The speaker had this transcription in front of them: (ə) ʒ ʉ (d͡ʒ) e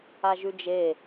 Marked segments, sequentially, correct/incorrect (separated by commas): incorrect, correct